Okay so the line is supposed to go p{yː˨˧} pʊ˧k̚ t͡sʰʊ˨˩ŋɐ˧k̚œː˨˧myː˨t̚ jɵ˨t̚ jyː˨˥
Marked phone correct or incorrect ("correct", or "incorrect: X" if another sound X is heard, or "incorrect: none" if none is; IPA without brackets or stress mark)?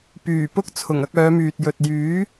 incorrect: yː˨˩